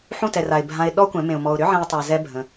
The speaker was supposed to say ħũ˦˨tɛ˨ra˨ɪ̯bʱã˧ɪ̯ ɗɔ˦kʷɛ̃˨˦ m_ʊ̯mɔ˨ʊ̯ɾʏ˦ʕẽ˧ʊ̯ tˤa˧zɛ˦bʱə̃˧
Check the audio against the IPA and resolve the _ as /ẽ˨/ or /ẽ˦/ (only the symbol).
ẽ˨